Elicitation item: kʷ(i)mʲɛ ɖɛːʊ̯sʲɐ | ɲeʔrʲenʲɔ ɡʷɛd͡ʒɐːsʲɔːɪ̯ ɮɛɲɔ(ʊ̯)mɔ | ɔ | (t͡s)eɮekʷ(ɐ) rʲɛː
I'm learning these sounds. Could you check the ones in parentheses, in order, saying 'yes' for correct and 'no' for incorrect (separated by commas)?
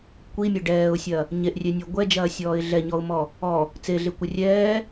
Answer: yes, yes, yes, no